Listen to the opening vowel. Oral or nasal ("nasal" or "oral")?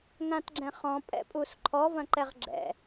nasal